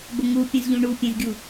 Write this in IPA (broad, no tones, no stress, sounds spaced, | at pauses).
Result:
b ə ŋ u pʲ ə̃ z ʎ ũ ɳ u pʲ ɛ̃ z ɡʲ u